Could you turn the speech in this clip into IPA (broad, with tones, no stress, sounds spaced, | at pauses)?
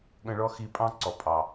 ɠ ə̃˧ ɭ ɔ˦ x i˧ pʼ ɑ̃˦ ǀ ɔ˨ pʼ ɑ˨